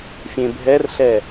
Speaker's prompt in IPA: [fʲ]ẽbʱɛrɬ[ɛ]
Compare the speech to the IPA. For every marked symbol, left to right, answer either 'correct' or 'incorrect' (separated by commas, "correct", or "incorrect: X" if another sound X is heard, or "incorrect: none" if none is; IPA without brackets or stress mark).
correct, correct